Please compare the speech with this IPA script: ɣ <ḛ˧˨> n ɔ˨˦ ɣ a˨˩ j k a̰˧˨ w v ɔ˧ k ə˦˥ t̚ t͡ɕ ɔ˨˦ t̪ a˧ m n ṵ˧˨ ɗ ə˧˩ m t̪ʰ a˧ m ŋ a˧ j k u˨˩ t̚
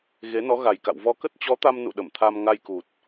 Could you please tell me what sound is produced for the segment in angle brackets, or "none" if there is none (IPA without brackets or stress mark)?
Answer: e˨˦